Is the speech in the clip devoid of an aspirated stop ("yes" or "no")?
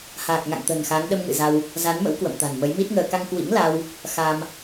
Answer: yes